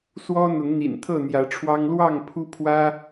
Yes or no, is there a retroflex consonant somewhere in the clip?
yes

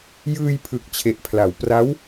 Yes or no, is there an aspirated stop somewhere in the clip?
yes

